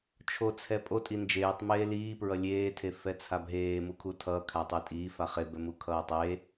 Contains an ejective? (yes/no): yes